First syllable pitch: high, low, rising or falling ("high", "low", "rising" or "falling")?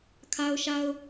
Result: high